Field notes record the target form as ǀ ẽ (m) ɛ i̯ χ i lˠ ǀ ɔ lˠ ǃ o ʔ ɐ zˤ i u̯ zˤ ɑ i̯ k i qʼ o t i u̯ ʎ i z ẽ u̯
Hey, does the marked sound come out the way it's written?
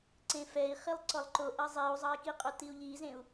no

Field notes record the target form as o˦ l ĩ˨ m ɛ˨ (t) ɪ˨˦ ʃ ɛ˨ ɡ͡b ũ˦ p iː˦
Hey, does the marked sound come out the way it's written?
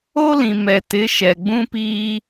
yes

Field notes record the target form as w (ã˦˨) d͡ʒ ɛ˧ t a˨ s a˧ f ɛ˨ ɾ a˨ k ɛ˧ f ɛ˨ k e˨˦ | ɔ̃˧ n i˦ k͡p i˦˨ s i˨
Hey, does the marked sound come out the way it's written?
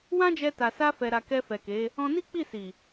no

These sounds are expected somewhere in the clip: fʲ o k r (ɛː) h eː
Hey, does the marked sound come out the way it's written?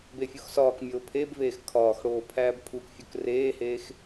no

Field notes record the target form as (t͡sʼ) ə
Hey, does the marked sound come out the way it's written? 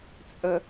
yes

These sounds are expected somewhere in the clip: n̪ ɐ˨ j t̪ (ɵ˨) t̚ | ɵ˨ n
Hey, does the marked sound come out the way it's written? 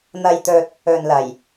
yes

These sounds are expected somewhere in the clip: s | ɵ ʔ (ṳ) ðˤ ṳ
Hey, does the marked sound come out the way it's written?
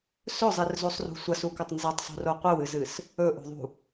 no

